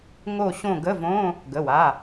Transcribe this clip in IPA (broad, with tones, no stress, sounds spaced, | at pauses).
ŋ o˦˨ ɕ õ˦˨ ɡ ə˧˥˧ v õ˧˥˧ | ɡ ə˩˧˩ w a˩˧˩